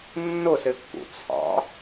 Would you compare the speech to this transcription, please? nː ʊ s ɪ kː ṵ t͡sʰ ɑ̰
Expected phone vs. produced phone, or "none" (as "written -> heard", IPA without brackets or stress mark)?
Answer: none